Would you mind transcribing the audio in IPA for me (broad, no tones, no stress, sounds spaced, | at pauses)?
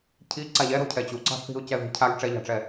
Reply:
cʰ i ǀ a ʎ ɛ ɾ ɔ̤ cʰ ɛ t͡ɕ u ǀ ɑ̤ θ i̤ ʊ̯ c ɛ ð i̤ cʰ a ɡ ʈ͡ʂ ɛ ʎ ɑ̤ ʈ͡ʂ ɛ